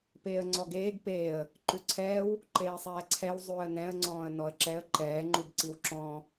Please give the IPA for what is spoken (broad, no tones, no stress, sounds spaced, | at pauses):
p eː ə̯ ŋ͡ǀ ɔ ɡ eː ɡ p eː ə̯ | ǃ ʉ ǀʰ ɛː w | ǃ eː sˤ ɛː ǀʰ ɛ w zˤ ʉː ə̯ n ɛ̃ ə̯ ŋ͡ǀ ɔ̃ː ə̯ n ɔ ə̯ ǁ ɛ ə̯ ǃ ɛː ŋ͡ǃ u b ǀ i w ǁ ɔ̃ː